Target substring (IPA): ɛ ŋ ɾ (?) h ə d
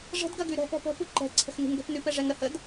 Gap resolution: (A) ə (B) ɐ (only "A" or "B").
A